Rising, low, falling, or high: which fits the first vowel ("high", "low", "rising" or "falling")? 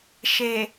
low